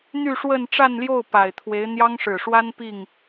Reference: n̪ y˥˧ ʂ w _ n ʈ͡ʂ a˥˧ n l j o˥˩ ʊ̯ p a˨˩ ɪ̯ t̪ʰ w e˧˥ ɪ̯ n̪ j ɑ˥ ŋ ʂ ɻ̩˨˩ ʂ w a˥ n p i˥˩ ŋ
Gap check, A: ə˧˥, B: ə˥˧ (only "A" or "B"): B